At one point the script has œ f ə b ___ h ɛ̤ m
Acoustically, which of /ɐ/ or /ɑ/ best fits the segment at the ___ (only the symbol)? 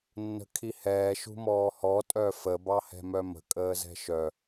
ɑ